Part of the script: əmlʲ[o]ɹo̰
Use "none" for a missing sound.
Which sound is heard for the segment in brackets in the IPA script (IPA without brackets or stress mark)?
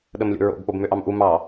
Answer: o̰